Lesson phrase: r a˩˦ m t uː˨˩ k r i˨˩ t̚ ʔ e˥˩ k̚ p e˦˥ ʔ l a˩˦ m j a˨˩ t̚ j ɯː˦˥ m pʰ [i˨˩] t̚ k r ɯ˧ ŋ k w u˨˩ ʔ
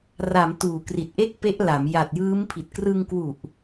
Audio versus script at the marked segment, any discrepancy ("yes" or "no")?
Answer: no